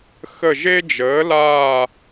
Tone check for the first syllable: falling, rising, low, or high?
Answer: falling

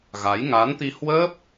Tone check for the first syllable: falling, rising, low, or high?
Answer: rising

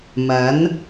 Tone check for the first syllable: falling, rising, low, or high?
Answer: rising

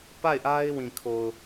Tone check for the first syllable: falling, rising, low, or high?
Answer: falling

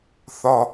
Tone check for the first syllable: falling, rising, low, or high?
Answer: low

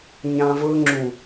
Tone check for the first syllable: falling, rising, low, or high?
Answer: high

